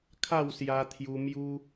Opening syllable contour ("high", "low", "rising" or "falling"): falling